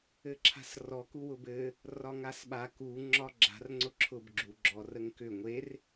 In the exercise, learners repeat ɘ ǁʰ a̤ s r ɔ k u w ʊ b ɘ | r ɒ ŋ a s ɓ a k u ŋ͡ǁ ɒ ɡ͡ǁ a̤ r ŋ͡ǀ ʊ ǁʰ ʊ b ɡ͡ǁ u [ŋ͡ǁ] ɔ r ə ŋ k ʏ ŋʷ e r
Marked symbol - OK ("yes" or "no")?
no